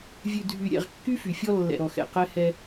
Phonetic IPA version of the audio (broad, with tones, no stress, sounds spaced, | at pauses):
vʲ ʉ˨ dʱ y˨ ɾʲ ɛ̰˨ ʁ kː y˦ f y˨ fʲ ɔ˦ lː ɛ̰˨ ɾ ɔ˨ x ɛ̰˨ q ɛ˦ h ɛ˦